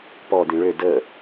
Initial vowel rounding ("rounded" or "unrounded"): rounded